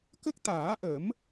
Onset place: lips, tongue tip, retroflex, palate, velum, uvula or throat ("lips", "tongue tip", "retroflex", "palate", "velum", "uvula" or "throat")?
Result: velum